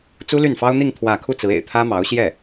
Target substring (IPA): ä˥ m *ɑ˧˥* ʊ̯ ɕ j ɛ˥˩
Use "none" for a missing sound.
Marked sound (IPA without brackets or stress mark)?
ɑ˧˥